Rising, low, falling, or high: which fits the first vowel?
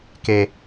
low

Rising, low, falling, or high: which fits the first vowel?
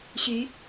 rising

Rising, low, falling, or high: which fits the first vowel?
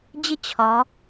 high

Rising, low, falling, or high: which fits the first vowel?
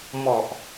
low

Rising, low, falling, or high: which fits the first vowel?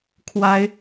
high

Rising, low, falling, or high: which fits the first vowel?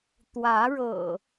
rising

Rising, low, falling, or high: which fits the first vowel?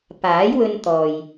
rising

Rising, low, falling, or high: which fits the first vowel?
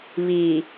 low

